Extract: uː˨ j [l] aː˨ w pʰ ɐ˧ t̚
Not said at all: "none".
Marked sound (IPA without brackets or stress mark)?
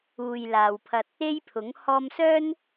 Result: l